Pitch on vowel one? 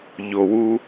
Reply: low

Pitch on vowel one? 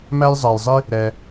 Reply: high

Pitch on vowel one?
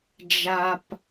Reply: high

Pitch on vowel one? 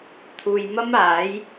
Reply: low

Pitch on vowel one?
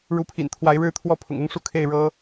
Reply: rising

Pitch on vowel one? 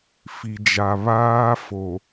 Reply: low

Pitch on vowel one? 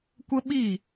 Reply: high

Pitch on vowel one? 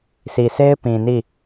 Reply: low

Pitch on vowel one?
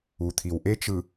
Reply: low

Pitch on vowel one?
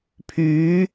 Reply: rising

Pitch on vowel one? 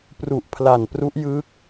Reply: low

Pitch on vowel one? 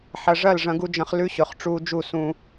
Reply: low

